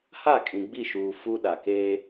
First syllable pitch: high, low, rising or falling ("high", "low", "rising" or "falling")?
falling